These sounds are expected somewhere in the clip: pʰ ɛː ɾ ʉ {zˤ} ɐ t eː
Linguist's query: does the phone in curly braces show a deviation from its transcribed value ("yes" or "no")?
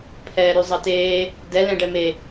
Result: no